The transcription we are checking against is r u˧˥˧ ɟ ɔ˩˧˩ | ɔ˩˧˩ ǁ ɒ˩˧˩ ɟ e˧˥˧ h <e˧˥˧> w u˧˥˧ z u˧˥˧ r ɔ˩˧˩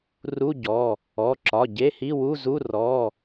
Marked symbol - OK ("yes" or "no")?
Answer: no